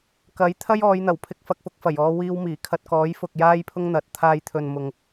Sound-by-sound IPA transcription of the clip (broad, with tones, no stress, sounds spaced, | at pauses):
k ɐ˨˥ j t̪ʰ ɐ˥ j ɔː˨˧ j n̪ ɐ˨˩ w pʰ ɪ˧ k̚ f ɐ˧ k̚ f ʊ˧ k̚ f ɐ˨˩ j ɔː˧ w iː˧ w m iː˨˩ kʰ ɐ˧ t̚ k ɔː˨˥ j f ʊ˨ k̚ j aː˥ j pʰ ʊ˥ ŋ n̪ ɐ˨ t̚ t̪ʰ aː˧ j t̪ʰ ɵ˨ n m ʊ˨ ŋ